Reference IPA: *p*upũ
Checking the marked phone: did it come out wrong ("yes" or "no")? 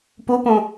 no